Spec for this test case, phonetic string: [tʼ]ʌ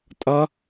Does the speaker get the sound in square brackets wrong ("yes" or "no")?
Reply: no